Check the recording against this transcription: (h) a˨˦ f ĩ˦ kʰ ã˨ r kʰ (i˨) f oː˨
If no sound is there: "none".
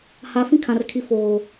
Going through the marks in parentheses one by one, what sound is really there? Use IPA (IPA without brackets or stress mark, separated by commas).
h, i˨